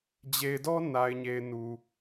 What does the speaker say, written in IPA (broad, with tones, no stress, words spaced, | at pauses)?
d͡ʑe˨ɪ̯dɔ˦ na˨ɪ̯ɲe˨ɪ̯nu˨